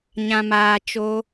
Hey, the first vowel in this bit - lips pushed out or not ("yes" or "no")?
no